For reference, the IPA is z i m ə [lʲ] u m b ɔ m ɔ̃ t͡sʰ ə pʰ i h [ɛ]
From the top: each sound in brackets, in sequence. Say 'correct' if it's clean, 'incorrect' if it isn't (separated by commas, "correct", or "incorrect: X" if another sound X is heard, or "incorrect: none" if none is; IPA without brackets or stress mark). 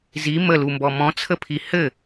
incorrect: l, incorrect: ɘ